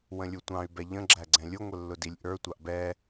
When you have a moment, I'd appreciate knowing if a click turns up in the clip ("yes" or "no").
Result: yes